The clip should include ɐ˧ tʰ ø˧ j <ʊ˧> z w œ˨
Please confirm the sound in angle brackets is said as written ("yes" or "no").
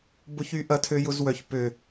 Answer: yes